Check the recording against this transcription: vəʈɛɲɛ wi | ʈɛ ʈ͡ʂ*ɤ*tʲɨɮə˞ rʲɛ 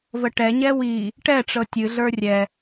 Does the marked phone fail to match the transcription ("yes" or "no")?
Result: no